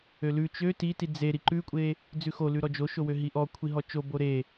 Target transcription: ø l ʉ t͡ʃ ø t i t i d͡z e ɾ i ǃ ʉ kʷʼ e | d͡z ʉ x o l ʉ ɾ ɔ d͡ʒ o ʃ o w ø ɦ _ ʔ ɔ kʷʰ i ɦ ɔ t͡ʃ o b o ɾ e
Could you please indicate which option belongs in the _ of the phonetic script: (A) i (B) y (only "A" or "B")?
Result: A